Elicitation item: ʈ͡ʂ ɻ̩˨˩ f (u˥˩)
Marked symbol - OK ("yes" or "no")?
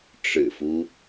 no